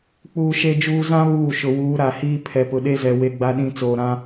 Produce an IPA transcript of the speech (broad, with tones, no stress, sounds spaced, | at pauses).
k͡p uː˨ ʃ e˨ d͡ʒ uː˨ z ã˦ β uː˦˨ ʃ ʊ˨ w uː˨˦ ɾ a˨ h iː˦ pʰ ɛ˨ p ʊ˨ ɗ e˦ z ɛ˨ w e˦ ɡ͡b a˦ ɗ ĩ˦ t͡s oː˨ ɾ ã˦